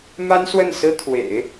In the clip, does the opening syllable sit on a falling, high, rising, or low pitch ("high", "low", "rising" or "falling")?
high